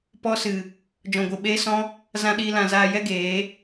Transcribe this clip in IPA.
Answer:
p ɔ˦ s ɨ˨ | d͡ʒ ɔ̃˨ ɡʷ ɨ˨ ɓ eː˦ s ɔ̃˦ | z ã˧ ɗ iː˧ l ã˨ z aː˧ j ɛ˦ ɡ eː˨˦

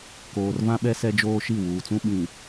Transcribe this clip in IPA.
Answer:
k oː˨ r v ã˦ ɓ ɛ˦ s ɛ˦ d͡ʒ oː˦ ʃ i˦˨ w uː˨ t͡s ũ˦ ɓ ĩ˨

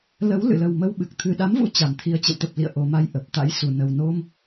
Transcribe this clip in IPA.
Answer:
l ə˨˦ w l ɨ̰˧˨ l ə˨˩ w m ə˧ w ɓ ɨ˨˩ k̚ t̪ʰ ɨ˨˩ ɗ a˨˦ m v ṵ˧˥ t͡ɕ a˨˩ m t̪ʰ i˧ ə̯ t͡ɕ ə̰˧˨ w t̪ ə˨˩ p̚ l ḭ˧˨ ə̯ ʔ o˨˩ m a˧ j ʔ ə˨˩ p̚ t̪ a̰˧˥ j s u˧˩ n ə˨˩ w n o˧ m

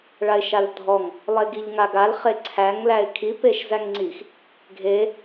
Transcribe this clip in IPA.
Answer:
ɭ a ɪ̯ ʃ a l dʱ ɔ ŋ | lˠ e ɡ i ʎ ŋ a ɡ a l χ e ǀʰ æ ŋ l æ ɪ̯ kʰ i p e ʃ z æ ŋ ŋ͡ǀ i x | ɡʱ e

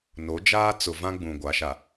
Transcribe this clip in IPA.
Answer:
n o˨˦ d͡ʒ aː˦ t͡s ʊ˨ v ã˦ ɡ͡b ũ˨ ɡʷ a˨˦ ʃ a˨

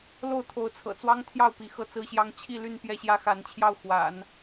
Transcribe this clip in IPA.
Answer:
l o˥˩ ʊ̯ t̪ʰ o˧˥ ʊ̯ t͡sʰ ɤ̰˨˩ t͡s w ɑ˥ ŋ t̪ʰ j ɑ˥˩ ʊ̯ p i˧˥ x ɤ˥˩ t͡s ɹ̩˥ ɕ j ɑ˥ ŋ t͡ɕʰ i˥˧ l y˥˧ n p j ɛ˥˩ ɕ j ä˥ x a˧˥ n t͡ɕʰ j ɑ˥˩ ʊ̯ x w a̰˨˩˦ n

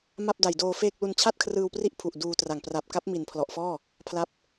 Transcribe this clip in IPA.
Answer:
m a˥˩ p̚ d a˨˩ j d oː˧ f eː˥˩ k̚ l u˧ n t͡ɕʰ a˥˩ t̚ kʰ r ɯː˧ w p r i˦˥ ʔ pʰ u˨˩ ʔ d uː˧ t r a˨˩ ŋ p r a˨˩ p̚ k a˦˥ p̚ m i˨˩ n pʰ l ɔ˨˩ ʔ f ɔː˥˩ | pʰ l a˦˥ p̚

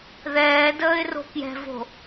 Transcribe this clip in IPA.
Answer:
ð ɛː d əː ɪ̯ r o̤ k j ɛ̤ v o̤

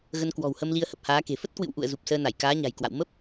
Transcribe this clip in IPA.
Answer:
ɣ ə˧ n k w ɔ̤˨˩ w h ə˧ m l i˧ ə̯ h ə˨˩ p̚ h aː˨˦ k e̤˨˩ f ə˦˥ t̚ k w ɨ̰˧˨ w ʔ ṵ˧˨ ə̯ z u˨˩ p̚ s əː˧ n a˧˩ j k aː˨˦ ɲ a̤˨˩ j k w a̰˧˨ w m ə˦˥ p̚

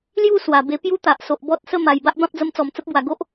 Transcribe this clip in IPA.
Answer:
l j u˥˧ s w a˨˩ b e˧ p j u˦ t̪ a˨ ʔ s o˨ ʔ b ɔ˦ t̚ s ə˥˧ m a˨˩ j b a˦ ʔ b ã˦ p̚ d͡z ə˧ m t͡s ɔ˨˩ m t͡s ə˦ p̚ b w a˨˩ ɡ o˦ ʔ

